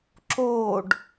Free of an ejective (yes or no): yes